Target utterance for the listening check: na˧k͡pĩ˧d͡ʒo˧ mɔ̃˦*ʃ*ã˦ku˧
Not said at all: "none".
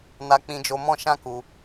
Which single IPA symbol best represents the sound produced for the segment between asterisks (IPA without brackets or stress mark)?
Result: ʃ